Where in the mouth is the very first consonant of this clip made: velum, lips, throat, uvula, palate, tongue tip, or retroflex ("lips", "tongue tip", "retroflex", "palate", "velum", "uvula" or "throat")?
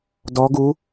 tongue tip